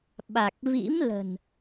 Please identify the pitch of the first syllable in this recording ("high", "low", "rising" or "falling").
low